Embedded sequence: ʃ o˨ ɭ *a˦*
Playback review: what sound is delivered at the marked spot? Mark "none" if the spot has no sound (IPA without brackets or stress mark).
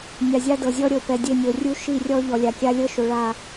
a˦˨